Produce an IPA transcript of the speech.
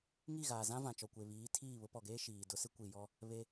ŋ i˦˨ ɣ aː˨ z ã˦ v ã˨ t͡ʃ ɔ˨ kʷ e˨ β iː˨˦ tʰ iː˦˨ β ʊ˦ p ɔ˨ ɡ eː˦ ʃ iː˨ d ʊ˦ s ɪ˦ kʷ i˨ j ɔ˦ | β e˦

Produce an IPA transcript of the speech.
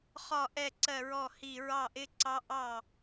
χ ɒ˧˩ ʔ ɛ˧˩ ǀ ɜ˧˩ ɹ ɔ˧˩ h i˧˩ ɹ ɑ˥˩ ʔ ɪ˦˥ ǀ ɑ˦˥ ʔ ɑ˥˩

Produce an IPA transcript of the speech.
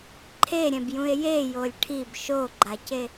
ǃʰ e ɾʲ ɛ̃ b j ũ e̯ j e j o lʲ ʈʰ i b ʃ o ɡ͡ǃ a c e

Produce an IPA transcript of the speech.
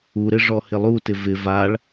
u ɾ ɪ ʐ ɔ h ɪ lˠ u t ɪ v ɪ v a ɭ

